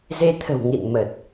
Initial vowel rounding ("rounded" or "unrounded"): unrounded